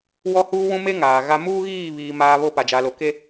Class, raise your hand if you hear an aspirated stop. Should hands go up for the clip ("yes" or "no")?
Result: no